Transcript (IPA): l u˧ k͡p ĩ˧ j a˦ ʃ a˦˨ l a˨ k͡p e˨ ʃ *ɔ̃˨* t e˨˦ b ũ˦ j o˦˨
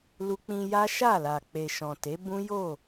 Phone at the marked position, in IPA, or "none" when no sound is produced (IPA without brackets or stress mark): ɔ̃˨